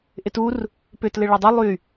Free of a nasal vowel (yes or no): yes